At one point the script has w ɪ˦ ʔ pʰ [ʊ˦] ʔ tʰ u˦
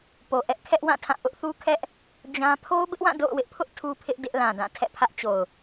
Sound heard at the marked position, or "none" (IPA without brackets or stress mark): ʊ˦